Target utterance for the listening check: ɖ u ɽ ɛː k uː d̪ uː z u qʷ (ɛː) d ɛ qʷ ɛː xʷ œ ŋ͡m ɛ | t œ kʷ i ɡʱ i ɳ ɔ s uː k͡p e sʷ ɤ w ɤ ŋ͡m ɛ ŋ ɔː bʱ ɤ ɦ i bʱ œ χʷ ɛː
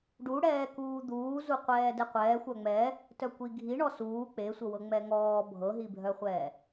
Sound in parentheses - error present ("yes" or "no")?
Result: no